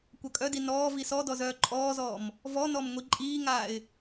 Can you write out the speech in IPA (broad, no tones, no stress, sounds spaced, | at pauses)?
kʷ œ kʼ œ d i n ɔː v i s ɔ d ɔ z œː ǃʼ ɔː z ɔː m | v ɔ n ɔ m ŋʷ i ǃʼ iː ŋ aː ɪ̯